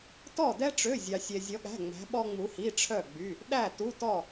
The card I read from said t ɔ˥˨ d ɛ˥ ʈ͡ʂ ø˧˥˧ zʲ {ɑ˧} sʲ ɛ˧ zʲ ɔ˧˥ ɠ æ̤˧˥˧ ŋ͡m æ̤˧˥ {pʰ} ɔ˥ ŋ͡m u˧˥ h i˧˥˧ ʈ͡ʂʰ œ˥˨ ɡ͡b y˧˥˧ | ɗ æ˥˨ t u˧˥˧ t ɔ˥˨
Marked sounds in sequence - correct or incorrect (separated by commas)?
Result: correct, incorrect